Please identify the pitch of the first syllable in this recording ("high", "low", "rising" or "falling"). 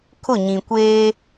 falling